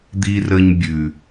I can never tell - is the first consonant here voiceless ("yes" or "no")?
no